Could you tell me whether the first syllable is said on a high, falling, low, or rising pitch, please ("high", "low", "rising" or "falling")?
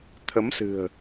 rising